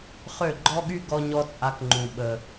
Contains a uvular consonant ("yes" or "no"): yes